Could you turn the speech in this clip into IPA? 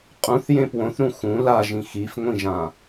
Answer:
qʼ ũ θ j ẽ p w õ θ ɾ ũ x ũ l a ʒ ĩ x i f ŋʷ ĩ ʒ ã

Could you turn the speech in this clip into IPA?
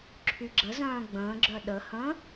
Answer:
ǁʰ y ɡ͡ǁ ə z œ̃ː ɡ͡b ə̃ː ɡ͡ǁ œ ɗ ə h ə̃ː

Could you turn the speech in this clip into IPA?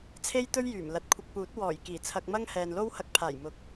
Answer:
t͡sʰ e˥ j t̪ ɵ˥ ɥ j yː˨˩ m l ɐ˨ t̚ kʷʰ ɪ˧ k̚ p uː˨˥ t̚ w ɔː˨˩ j k iː˨˩ t͡sʰ ɐ˧ k̚ m ɐ˥ ŋ h ɛː˨ n l o˥ w h ɐ˧ k̚ pʰ aː˨˩ j m ʊ˨ k̚

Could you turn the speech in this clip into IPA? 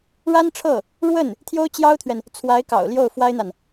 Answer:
ɻ a˥ n ʈ͡ʂʰ ɤ˥˩ | ɻ w ə˥˩ n | t̪ʰ j o˥ ʊ̯ t͡ɕ j ɑ˥ ʊ̯ t̪ʰ ɥ ɛ˨ n | t͡sʰ w a˧˥ ɪ̯ k ɑ̰˨˩ ʊ̯ l j o˥˩ ʊ̯ f w a˥ ɪ̯ n̪ a˨ n

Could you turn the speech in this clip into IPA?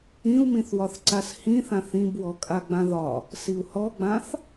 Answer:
ĩ u̯ m ĩ θ w ɒ θ ǀ a s h ĩ θ ã θ ĩ b w ɔ kʼ a ɡ͡b ã ð ɒ | s i u̯ h ɔ ɡ͡b ã θ

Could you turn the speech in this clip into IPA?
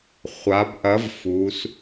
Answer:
χʷ a˩˧ b ʔ ɐ˨˥ v f u˩˧ s

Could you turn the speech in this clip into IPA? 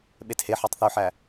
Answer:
ɓ e t h e ħ e tˤ θ ø ħ æ

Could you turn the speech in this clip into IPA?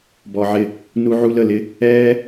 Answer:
b ɔ˧ ʕ ɪ˦˨ | n u˦ ʕ u˦ l ə˧ l ɪ˦ | ɛː˦

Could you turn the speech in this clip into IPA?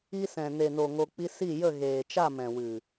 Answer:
i˧ s ɛ̃˨ n e˨ n o˨ ŋ o˧ k͡p i˦ s i˦˨ j ə˦˨ ɣ eː˨ t͡ʃ a˦˨ m ɛ̃˨ w ɨ˨

